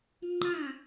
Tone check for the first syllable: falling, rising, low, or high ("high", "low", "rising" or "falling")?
falling